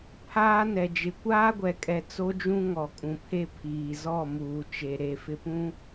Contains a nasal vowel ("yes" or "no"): yes